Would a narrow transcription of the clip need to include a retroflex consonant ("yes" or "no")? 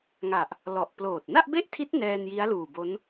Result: no